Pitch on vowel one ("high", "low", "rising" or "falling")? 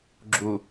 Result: low